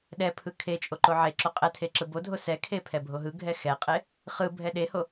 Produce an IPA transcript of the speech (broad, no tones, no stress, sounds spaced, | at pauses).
ɗ ɛ pʰ ɯ kʰ e t͡ʃʼ o ǃ o ʕ e ǁ o qʼ ɛ tʰ e ǁ ɯ b o dʱ o s ɛ kʰ e pʰ ɛ bʱ o ɦ ɯ ɡʱ ɛ x ɛ qʼ e | χ ɯ bʱ ɛ ɗ e h o